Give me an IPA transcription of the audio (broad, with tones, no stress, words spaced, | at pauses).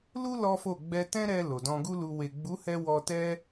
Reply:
lu˦ lɔ˦fo˦˨ ɡ͡bɛ˧tɛ̃˦ɾɛ˧ lo˨dɔ̃˧ɡu˦lu˧ we˨ɡ͡bu˨˦hɛ˧ wɔ˧tɛ˦